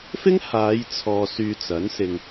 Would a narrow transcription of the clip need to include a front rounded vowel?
yes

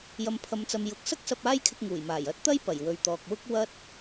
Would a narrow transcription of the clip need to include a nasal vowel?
no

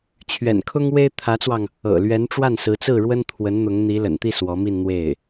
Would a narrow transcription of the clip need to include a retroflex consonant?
yes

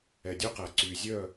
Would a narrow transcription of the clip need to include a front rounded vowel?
yes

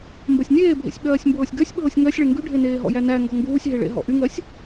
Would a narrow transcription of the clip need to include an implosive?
yes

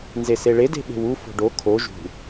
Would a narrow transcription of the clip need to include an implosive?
yes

